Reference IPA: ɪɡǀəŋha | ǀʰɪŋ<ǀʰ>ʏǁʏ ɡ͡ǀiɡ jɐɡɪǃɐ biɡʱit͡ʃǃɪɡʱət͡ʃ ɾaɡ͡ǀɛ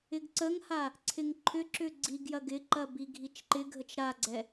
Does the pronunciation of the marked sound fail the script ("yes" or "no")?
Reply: yes